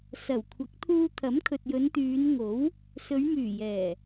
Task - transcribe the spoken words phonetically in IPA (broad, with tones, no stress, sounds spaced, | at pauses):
s ɐ˨˩ w kʷʰ ɐ˨˥ k̚ t̪ʰ uː˧ t̪ʰ ɐ˨˥ m kʰ ɵ˨ t̚ j ɵ˨˧ n t̪ yː˨˧ n ŋ o˨˥ w | s ɵ˨˧ ɥ m yː˨˩ j ɛː˨˩